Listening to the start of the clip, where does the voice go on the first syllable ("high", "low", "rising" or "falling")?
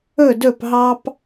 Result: falling